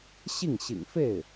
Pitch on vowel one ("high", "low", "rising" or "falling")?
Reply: falling